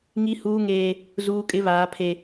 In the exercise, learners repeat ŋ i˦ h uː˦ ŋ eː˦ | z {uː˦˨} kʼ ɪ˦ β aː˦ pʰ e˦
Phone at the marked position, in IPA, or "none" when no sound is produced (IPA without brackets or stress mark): uː˦